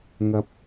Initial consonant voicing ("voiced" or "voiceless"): voiced